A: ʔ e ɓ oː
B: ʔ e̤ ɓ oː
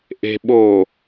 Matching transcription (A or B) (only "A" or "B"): B